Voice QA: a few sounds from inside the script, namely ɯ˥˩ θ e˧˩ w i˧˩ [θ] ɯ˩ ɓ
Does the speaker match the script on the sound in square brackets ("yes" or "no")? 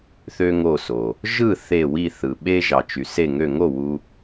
yes